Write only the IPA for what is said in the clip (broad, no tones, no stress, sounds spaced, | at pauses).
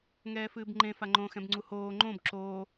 ŋ ɛː f ɨː b ŋ͡ǃ ẽ f a ŋ͡ǃ õ x ɛ̃ b ŋ͡ǀ u h oː ŋ͡ǃ õ b ǁ oː